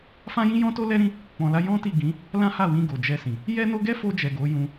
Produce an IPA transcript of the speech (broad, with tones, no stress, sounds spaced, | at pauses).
f ã˦ j ĩ˦ j ɔ̃˦ t o˦ l ɛ˦ ɾ ĩ˦ | k͡p ɔ̃˧ l a˦ j ɔ̃˦ t i˦˨ ɡ ĩ˨˦ | l ã˦ h a˦˨ w ĩ˧ ɡ o˨ d͡ʒ ɛ˧ s ĩ˨ | j ɛ˦ n o˦ ɡ ɛ˦ f o˧ d͡ʒ ɛ˨ ɡ o˨˦ j ũ˧